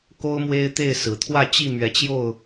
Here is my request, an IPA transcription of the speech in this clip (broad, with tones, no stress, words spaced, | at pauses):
ko˦ʊ̯mwe˦ɪ̯t̪e˥˨ɪ̯sɹ̩˨˩ t̪ʰwä˥˨t͡ɕi˥˨mɥɛ˨˦t͡ɕjo˥˨ʊ̯